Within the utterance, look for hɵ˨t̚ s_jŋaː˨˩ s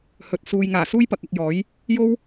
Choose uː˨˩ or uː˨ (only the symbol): uː˨